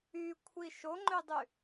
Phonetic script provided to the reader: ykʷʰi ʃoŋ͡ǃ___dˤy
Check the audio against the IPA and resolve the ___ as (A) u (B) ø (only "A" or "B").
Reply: B